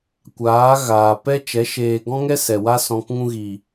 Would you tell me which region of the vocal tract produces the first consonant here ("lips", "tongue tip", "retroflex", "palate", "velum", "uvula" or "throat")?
velum